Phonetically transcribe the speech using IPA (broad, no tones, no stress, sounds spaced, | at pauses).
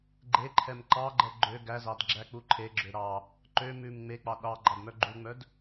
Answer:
ɡ͡ǃ e ǃʰ ɛ m ǃ ɑ ɡ͡ǃ ɛ ɡ͡ǃ ø ɡ æ z ɑ d ɡ͡ǁ æ k͡p u ǃʰ e ɡ͡ǁ ø ɾ ɑ | ǃ ø m ʉ m ŋ͡m e k͡p ɑ ɗ ɑ ɡ͡ǃ ɑ d m œ ɡ͡ǃ u ŋ͡m œ d